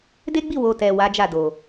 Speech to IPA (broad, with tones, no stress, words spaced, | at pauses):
de˦ɡ͡bi˦˨ wo˨ tɛ˨ wa˨˦d͡ʒa˦˨do˨